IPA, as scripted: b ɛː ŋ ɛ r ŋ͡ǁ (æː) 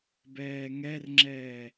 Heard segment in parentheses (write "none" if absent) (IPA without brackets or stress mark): ɛː